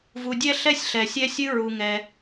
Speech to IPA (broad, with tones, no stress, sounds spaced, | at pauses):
v u˨ dʲ ɛ˥ ɬ ɛ˥ sʲ ɬ ɛ˩ sʲ ɛ˦ sʲ ɨ˦ ɹ u˨ ŋ ɛ˨